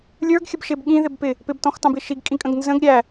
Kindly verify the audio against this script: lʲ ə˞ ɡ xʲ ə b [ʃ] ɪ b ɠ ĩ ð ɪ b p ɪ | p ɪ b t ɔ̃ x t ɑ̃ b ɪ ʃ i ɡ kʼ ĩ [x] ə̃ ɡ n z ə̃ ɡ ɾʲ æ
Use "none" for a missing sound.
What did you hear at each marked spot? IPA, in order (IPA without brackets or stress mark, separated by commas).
ʃ, kʼ